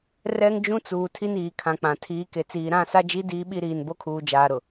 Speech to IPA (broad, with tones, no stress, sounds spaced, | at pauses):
r ɛ˦ ŋ d͡ʒ ũ˦ t͡s uː˨ tʰ i˦ n iː˨ kʰ ã˨ k͡p ã˨ tʰ iː˨˦ k e˨ t͡s iː˨ ɾ ã˦˨ s a˦ d͡ʒ i˦ d iː˦ ɓ i˦ ɾ iː˨ n b o˦ kʰ uː˨ d͡ʒ aː˨ ɾ ʊ˨